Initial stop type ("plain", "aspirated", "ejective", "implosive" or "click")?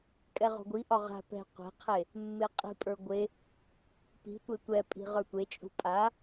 ejective